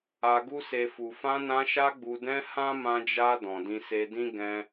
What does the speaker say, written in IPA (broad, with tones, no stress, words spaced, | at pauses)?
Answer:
a˧ɡu˦se˧ fu˨fã˧nã˧ʃa˧ ɡ͡bu˨dɛ̃˧ hã˦ mã˧d͡ʒa˧ dɔ̃˨dĩ˧se˧dĩ˦ ɡɛ̃˧